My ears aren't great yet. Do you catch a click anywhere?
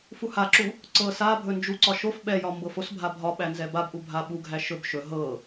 yes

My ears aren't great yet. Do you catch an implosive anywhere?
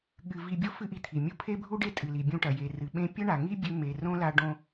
yes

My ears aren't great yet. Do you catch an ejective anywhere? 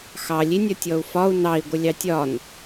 no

